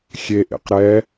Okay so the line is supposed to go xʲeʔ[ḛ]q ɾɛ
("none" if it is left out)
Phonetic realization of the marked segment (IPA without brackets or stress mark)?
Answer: ḛ